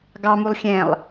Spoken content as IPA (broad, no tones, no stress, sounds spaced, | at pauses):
ɡ ɑ m u lˠ xʲ ɛ̃ lˠ